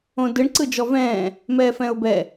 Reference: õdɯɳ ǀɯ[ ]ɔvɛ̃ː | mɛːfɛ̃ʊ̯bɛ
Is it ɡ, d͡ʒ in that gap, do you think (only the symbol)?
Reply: d͡ʒ